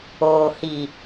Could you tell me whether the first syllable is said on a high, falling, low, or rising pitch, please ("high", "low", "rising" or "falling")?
low